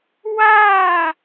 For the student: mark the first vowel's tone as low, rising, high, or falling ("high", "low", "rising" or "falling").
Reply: falling